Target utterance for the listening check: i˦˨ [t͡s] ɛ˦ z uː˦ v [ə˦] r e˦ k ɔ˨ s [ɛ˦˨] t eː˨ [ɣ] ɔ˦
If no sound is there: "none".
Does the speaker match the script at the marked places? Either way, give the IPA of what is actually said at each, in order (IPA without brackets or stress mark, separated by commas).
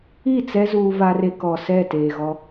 t͡s, a˦, ɛ˦˨, ɣ